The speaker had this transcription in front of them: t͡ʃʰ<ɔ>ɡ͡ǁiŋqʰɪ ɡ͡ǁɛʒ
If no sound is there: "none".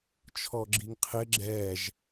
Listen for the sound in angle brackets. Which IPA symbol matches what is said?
ɔ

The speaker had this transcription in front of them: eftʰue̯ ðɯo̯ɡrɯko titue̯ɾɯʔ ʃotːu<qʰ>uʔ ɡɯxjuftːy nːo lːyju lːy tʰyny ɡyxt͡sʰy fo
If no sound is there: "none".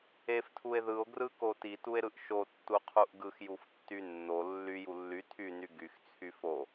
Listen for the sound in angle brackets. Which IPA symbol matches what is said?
qʰ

